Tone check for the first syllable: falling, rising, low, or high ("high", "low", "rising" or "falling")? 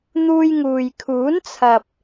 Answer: high